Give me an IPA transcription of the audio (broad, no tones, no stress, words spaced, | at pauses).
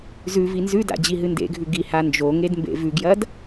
zʉvi nzʉda̰ d͡ʑiɦɨndḛɡʱʉ ɡi hand͡ʒoŋed mbḛvʉɡjɐd